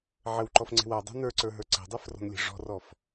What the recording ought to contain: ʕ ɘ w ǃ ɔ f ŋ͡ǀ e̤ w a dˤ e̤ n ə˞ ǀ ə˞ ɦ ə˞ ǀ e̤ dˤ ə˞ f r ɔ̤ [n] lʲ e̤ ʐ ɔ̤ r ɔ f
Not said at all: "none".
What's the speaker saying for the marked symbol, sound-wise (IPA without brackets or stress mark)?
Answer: n